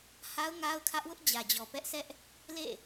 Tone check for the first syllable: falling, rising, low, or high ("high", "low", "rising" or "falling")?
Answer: high